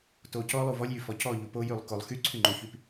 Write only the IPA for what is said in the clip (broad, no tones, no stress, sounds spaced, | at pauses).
t o c ɔ lˠ u v ɔ lʲ j y f ɔ c ɔ ʎ u p o j y lˠ k o lˠ x y ǀʰ y ŋ͡ǃ o ç y p